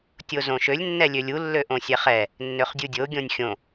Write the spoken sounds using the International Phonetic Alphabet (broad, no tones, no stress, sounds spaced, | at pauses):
tʲ o z õ ʃ ø lʲ nː ɛ lʲ ø lʲ u lː ø ʔ õ sʲ ɛ χ ɛ | nː ø χ dʲ u dʲ o ɡʲ õ nʲ xʲ õ